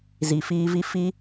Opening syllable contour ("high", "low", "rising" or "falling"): low